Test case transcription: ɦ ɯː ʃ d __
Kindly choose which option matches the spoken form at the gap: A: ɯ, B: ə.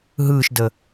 B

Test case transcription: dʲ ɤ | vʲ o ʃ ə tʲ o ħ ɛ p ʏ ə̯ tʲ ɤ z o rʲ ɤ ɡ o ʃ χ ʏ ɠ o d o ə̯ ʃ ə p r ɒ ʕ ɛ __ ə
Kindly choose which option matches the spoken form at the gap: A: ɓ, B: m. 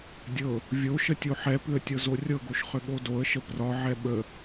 A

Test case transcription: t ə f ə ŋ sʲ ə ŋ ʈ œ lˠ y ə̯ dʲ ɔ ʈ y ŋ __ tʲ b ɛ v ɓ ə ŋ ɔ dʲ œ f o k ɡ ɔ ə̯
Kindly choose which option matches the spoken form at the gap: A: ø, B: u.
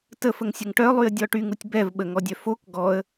B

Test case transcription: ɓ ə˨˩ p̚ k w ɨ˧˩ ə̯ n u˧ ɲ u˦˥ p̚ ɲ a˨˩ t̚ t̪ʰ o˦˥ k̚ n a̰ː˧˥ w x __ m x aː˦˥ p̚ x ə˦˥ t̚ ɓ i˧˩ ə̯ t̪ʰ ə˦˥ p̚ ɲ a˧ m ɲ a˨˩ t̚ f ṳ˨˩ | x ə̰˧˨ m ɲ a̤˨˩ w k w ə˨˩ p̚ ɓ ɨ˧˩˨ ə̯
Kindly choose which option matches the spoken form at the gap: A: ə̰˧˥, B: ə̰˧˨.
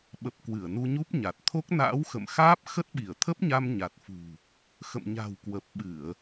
B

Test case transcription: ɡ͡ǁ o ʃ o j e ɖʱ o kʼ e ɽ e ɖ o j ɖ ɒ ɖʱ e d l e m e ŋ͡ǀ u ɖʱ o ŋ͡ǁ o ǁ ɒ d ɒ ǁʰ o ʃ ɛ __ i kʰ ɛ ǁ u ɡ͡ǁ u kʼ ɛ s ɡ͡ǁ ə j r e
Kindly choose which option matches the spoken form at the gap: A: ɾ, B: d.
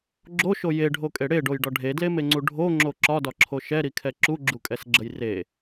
A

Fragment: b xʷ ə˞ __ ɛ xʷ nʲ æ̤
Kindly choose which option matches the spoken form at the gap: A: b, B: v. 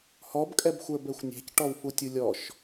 A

